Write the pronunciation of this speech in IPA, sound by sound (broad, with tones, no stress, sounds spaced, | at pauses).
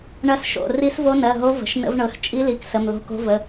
ɳ ɐ˧˥ s ʃ o̰˩˧˩ r i˧˥ s v o˧˥ n ɜ˩˧˩ ɦ o˧˥ v ə̤˩˧˩ ʃ n ə̰˧˥ v ɳ ɤ˩˧˩ x t͡ʃʼ i˧˥ l i˩˧˩ k s ə˩˧˩ m l o̤˧˥ k o̤˧˥ v ə˩˧˩